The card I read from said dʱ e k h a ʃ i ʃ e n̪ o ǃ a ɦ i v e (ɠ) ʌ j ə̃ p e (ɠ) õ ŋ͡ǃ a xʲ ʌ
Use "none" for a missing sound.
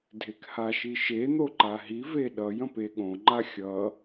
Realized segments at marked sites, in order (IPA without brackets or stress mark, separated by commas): ɗ, ɠ